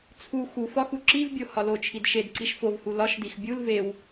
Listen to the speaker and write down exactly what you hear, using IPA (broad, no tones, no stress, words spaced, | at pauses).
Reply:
t͡sʰu xuf ɒxu ǁivbʲo hɒlot͡ʃʰid ʃed ǀiʃfovhu lɒʃdix bʲul vew